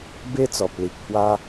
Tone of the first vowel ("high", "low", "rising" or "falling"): high